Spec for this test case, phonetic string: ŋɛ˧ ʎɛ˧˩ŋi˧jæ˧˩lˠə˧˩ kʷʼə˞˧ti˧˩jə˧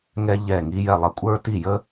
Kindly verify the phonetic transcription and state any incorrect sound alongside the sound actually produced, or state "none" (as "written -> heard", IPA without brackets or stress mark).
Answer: æ˧˩ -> ɛ˧˩